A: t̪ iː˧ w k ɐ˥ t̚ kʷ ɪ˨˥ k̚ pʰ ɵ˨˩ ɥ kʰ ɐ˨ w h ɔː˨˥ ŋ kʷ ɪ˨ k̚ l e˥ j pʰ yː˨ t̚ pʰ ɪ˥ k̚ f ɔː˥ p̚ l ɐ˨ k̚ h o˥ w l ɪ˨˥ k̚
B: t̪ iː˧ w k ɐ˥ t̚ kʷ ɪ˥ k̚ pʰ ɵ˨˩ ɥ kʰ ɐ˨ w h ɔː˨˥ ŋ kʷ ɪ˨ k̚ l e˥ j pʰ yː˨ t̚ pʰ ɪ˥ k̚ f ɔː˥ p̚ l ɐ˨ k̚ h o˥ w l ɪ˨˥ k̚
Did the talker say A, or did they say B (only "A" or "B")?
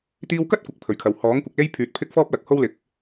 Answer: A